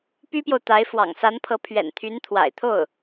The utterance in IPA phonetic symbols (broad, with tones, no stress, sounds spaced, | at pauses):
p y˥ p j o˨ ʊ̯ t̪ a˧˥ ɪ̯ f w ɑ̰˨˩ ŋ s a˧˥ n pʰ ɤ˧˥ pʰ ɥ ɛ̰˨˩ n t̪ʰ y˧˥ n t̪ʰ w a̰˨˩ ɪ̯ t̪ʰ o˥˩ ʊ̯